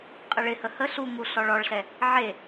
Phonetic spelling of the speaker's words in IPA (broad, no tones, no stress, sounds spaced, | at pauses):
qʼ ə ɭ ɪ h ə h ə ɬ u ŋ u ɬ ɔ ɭ ɔ ɭ ɬ ɛ | ʕ e